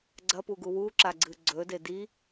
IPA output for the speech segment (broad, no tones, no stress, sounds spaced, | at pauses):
ɡ͡ǀ ɐ p u ɡ u w u ǁ a ɡ͡ǀ ɨ ɡ͡ǀ ɵ d e d i